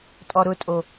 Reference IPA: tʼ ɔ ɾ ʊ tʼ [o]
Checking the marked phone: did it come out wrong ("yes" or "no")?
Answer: no